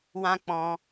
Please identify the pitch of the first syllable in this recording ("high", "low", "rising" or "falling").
high